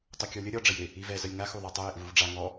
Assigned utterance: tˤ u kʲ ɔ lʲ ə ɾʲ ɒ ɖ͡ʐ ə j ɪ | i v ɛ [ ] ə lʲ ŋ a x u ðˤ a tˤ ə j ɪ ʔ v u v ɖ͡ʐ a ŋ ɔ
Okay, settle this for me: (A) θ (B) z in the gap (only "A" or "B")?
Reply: B